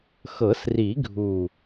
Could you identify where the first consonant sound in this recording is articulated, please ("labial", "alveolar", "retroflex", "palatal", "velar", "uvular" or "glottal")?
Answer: velar